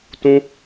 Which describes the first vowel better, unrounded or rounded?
rounded